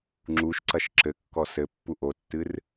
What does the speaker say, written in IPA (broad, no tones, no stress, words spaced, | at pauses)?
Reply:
ŋ͡ǁuʃǀɐʃ ǁɘkːɔ sɘpːu ʔotːɨr